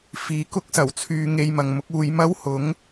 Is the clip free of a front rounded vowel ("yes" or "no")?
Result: no